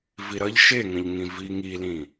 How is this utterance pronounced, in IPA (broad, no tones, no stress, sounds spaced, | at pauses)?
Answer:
v i ɾ ʌ ʎ ʃ e ŋ ə̃ ʎ ŋ ĩ v i ŋ i l ĩ